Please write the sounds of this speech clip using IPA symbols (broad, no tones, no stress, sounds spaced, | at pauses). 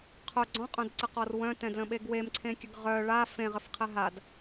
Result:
qʰ œ ɡ͡ǀ ɔ̃ qʼ œ̃ d ǀ ə q ɔ r w œ̃ t ɛ̃ d l ə̃ ɓ e ɡ w e m ǀʰ ẽ kʲ ə ɡ ʁ œ ɭ a f ẽ ʁ ə f qʰ ɛ ɦ a d